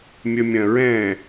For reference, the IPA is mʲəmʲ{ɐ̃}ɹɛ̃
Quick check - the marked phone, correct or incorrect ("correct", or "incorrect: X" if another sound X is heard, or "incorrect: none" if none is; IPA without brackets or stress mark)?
correct